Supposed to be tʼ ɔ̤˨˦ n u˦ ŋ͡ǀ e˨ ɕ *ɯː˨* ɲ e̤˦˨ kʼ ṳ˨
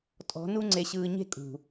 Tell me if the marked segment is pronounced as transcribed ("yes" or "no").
yes